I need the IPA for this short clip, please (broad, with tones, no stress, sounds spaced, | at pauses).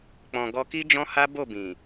k͡p ɔ̃˨ ɡ ɔ˧ k i˦ d͡ʒ ɔ̃˦ h a˦ b o˦˨ b ĩ˨